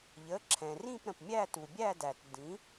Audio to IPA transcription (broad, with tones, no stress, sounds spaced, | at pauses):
ʎ ə˩˧˩ ǁʰ ɛ̃˩ r ĩ˦˨ p ɾ ə̃˩ p mʲ æ˦˨ t u˩ bʲ æ˦˨ d æ˩ t d ĩ˩˥